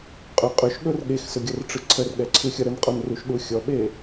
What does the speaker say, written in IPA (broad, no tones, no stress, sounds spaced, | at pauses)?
qʼ ɵ qʼ ɵ ʃ ɠ ɵ r ɠ e x s ɵ ɡʲ ʌ r ʈ͡ʂ ɯ ǀʰ ə r ɠ ɛ ǀʰ ɯ xʲ ʌ ɾ ə n qʼ ɔ n r u ʃ ɗ u xʲ ɔ ɓ e